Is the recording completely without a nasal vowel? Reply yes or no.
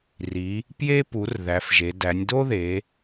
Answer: yes